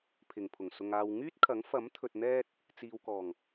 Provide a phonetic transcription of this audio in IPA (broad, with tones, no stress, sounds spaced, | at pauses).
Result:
pʰ ɪ˨˩ ŋ pʰ ʊ˨˩ ŋ s ʊ˨ ŋ aː˨ w ŋ yː˥ t̚ kʰ ɐ˨˥ ŋ f ɐ˨˥ m t̪ʰ ɵ˨ t̚ n̪ ɛː˧ t̚ | t͡s iː˨ w k ɔː˨˩ ŋ